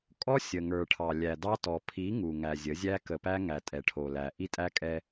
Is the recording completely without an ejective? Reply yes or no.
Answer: no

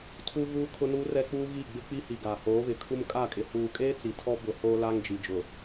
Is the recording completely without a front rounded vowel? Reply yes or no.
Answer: yes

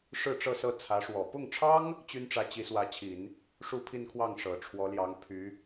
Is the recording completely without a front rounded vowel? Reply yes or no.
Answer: no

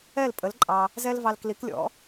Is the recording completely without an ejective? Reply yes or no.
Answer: no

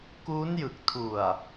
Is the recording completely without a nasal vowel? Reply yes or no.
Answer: yes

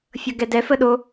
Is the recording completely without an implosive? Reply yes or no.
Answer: no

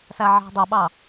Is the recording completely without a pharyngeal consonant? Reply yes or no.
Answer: no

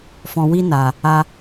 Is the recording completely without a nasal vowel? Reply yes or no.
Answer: no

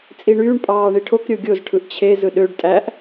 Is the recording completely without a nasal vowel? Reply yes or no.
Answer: yes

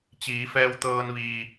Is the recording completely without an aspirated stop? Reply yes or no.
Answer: yes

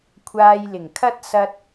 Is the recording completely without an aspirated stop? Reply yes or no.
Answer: no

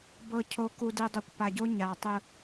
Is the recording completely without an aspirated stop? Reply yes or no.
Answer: no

